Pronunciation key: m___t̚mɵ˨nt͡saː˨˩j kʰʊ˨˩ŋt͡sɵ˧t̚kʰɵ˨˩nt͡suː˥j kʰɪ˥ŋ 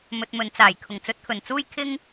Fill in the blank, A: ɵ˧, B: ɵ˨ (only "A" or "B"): B